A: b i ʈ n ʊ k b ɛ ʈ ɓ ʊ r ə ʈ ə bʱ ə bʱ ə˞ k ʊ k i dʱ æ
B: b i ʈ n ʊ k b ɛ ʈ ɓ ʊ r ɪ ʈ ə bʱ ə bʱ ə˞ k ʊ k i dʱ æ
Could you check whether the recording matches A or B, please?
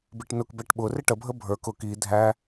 B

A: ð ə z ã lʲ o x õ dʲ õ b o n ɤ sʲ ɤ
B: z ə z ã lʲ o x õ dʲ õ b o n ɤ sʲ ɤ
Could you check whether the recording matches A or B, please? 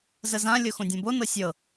B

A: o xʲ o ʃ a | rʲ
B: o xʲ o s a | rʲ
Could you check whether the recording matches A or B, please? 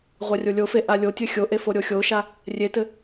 A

